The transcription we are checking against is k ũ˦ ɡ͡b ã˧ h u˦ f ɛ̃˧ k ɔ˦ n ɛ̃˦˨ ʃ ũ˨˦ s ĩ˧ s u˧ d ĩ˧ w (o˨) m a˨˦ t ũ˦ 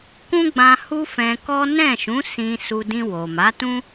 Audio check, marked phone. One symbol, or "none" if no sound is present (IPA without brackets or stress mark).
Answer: o˨